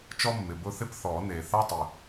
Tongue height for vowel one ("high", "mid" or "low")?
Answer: mid